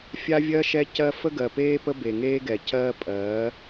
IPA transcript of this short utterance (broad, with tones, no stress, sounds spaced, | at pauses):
fʲ a˦ vʲ ɜ˦ ʃ ɛ˦ c ɜ˦ f ə˦ ɡ ɜ˨ p eː˦ p ə˦ b e˨ ŋ eː˦ ɡ ɛ˨ c ɜː˦ pʼ ɜː˨˦